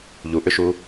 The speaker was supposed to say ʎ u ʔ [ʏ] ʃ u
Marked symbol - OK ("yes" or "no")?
yes